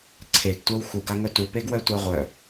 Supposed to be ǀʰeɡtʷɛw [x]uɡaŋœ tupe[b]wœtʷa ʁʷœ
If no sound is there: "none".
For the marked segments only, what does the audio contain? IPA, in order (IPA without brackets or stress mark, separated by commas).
x, ɡ